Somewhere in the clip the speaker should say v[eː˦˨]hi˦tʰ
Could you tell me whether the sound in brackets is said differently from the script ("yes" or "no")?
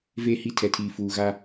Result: no